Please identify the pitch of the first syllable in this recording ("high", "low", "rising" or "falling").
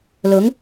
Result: rising